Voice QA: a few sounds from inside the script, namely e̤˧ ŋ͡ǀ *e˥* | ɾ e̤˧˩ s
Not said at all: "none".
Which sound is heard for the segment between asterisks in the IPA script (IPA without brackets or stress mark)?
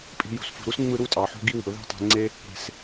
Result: e˥